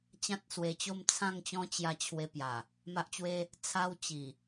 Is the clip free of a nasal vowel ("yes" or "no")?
no